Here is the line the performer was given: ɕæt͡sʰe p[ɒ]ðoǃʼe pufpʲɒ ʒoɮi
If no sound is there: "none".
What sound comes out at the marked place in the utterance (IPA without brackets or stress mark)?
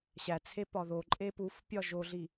ɒ